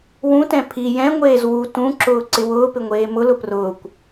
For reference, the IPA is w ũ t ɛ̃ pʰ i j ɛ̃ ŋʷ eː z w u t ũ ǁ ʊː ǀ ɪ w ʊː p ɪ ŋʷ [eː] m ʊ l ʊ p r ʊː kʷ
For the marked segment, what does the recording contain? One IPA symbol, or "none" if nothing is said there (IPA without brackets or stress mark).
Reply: eː